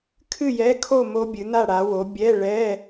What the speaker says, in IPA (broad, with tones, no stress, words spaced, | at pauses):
kʰɨ˥˨jɛ˧˥˧kʰo˥˨ mo˦˥bʲɨ˨˥ na˥˨ɽa˨˥wo˨˥ bʲɛ˧˥˧ɭɛ˧˥˧